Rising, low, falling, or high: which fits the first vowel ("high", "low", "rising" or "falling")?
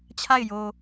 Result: falling